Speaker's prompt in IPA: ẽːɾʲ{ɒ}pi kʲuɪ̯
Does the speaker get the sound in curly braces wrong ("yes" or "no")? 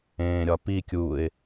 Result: no